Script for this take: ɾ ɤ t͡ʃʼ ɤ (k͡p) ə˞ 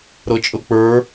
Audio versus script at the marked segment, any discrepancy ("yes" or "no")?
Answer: no